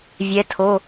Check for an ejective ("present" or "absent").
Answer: absent